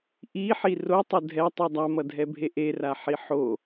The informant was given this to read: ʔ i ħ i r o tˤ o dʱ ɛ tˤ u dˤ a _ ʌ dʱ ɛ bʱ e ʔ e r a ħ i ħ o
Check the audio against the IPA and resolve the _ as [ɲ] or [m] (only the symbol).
m